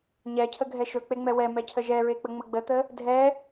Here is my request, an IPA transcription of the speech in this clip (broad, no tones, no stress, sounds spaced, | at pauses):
ɲ ɛ cʰ ə ɡʱ ɛ ʃ ɵ k͡p e ŋ͡m ɛ w ɛ m ɛ cʰ ə ʒ ɛ ɹ e k͡p ə ŋ͡m ə ɡ͡b ə t̪ ə | dʱ ɛ